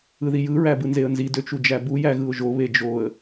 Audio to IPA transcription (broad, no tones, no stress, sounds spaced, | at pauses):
ɯ ð i j ɯ ɹ æ b ɯ n z e ə̯ n z i d ø t͡ʃ u d͡ʒ æ b u j æ ɣ ɯ ʊ̯ ʒ o β e d͡ʒ o ə̯